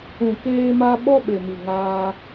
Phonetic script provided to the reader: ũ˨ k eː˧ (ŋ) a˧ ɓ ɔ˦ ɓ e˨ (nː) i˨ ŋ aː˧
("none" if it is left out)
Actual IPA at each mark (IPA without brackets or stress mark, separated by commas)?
m, m